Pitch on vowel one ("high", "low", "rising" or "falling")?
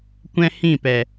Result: high